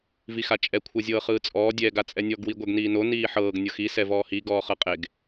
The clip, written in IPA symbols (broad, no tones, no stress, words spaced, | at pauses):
vixat͡ʃʼɛ kʷʰɤzʲɤːχɯːt͡sʼɔː dʲɛːɡat͡sʼɛnʲɔɡ wiɡʷɛɡniːno niːħɤːɡ nʲɤxi sɛvɔːhi ɡɔːχɤqʼeɡ